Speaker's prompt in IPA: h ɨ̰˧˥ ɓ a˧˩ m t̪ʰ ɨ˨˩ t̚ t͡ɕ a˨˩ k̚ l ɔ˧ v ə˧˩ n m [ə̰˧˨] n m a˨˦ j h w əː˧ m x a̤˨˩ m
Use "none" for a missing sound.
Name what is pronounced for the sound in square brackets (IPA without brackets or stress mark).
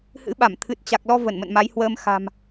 ə̰˧˨